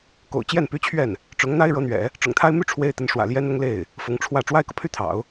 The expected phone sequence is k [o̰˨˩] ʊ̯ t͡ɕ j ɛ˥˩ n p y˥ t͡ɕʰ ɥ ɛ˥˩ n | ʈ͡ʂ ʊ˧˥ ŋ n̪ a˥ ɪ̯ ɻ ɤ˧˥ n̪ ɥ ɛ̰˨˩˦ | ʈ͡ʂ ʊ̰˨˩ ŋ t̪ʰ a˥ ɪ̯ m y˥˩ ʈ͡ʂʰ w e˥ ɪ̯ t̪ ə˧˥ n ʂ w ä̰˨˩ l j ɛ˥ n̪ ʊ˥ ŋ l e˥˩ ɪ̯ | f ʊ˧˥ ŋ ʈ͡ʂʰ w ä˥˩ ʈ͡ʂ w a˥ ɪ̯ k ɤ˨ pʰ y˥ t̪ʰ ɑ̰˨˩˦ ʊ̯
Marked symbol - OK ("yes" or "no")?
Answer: yes